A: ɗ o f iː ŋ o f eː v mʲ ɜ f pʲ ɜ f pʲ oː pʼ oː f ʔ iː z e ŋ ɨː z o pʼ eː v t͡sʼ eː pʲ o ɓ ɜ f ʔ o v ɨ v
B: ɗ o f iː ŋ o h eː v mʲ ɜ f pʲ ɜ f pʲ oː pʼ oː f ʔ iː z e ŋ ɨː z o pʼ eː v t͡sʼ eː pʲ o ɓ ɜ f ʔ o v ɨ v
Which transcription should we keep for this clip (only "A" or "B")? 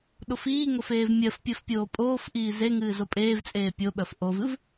A